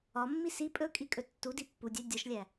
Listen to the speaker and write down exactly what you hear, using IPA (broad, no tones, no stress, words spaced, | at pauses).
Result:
ɒmːi si pʼɵkʼikʼɵ tːudi pːudʲæ dʲɒʃlʲæ